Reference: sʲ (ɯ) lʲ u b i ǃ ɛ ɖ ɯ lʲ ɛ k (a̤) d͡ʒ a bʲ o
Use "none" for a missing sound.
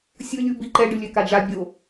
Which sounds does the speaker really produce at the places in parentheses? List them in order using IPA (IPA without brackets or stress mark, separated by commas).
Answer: ɯ, a